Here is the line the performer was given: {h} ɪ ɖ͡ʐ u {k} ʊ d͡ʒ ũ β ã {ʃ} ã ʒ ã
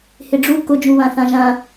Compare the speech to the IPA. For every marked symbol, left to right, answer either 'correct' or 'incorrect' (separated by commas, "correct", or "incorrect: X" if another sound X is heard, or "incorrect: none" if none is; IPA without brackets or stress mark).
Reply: correct, correct, incorrect: θ